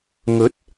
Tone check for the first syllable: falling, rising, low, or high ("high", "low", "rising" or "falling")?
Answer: rising